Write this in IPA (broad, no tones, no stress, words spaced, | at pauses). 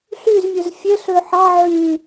ɬyzmʲøz fʲeɬ øħɑ ʕy